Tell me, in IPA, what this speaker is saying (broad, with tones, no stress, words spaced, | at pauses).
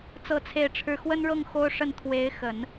t͡sɤ˥t͡sʰe˥˧ɪ̯ʈ͡ʂʰɻ̩˥˩ xwə˥nɻɤ˥˩ŋ xo˥ʊ̯ʂə˥˩n t̪ʰwe˧˥ɪ̯xə˨˩˦n